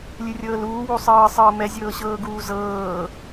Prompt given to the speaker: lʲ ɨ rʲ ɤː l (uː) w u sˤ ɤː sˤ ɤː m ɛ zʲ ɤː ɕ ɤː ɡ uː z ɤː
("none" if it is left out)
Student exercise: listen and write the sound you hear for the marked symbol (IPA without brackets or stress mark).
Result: uː